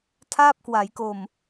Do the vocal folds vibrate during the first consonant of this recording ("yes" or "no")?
no